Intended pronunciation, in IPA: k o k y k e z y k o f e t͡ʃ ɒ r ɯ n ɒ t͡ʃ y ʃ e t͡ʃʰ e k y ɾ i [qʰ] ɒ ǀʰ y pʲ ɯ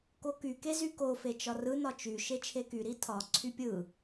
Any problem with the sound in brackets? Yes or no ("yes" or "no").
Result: yes